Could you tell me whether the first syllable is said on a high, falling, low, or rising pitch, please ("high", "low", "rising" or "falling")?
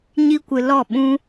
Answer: high